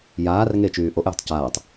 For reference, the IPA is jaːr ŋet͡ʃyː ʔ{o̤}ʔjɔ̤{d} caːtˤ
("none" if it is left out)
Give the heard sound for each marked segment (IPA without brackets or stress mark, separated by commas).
o, tˤ